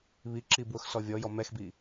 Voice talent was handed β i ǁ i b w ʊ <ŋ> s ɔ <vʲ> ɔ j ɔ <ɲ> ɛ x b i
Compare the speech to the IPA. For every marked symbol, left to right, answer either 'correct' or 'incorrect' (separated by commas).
incorrect, correct, incorrect